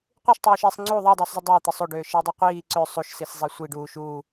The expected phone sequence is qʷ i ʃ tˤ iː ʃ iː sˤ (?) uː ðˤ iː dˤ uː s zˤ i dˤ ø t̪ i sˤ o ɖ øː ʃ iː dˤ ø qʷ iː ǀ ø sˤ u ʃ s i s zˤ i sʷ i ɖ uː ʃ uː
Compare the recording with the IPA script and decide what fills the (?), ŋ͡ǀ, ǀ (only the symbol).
ŋ͡ǀ